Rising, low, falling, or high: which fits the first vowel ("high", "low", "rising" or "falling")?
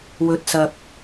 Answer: low